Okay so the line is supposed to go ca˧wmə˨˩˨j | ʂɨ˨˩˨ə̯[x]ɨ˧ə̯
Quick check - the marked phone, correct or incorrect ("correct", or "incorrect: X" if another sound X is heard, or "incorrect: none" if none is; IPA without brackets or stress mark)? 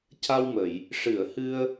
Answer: incorrect: h